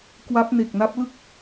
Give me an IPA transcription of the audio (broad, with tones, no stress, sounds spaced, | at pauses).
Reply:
k w a˦˥ p̚ n e˨˩ k̚ n a˦˥ p̚ l ɯ˥˩ k̚